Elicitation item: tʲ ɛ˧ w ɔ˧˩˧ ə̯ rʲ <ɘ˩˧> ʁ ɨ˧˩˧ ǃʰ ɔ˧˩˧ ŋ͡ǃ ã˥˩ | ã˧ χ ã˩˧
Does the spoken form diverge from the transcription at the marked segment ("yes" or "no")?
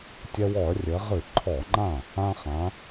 no